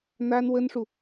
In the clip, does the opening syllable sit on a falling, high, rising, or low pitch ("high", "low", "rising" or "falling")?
high